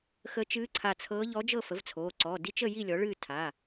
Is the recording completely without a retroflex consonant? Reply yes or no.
no